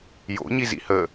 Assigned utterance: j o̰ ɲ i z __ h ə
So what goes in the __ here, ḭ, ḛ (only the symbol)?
ḭ